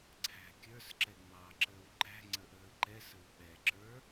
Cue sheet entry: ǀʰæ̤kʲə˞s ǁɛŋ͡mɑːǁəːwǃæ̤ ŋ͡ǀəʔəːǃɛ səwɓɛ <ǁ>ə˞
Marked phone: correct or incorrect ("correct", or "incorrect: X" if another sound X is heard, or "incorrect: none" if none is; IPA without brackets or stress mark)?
correct